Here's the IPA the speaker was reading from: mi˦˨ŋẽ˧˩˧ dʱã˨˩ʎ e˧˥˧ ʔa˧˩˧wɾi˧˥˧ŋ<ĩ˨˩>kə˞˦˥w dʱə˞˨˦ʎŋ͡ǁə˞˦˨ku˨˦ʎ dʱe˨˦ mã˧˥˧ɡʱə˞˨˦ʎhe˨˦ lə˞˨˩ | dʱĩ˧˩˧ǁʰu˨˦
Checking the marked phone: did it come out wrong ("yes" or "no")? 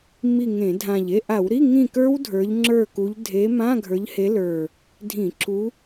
yes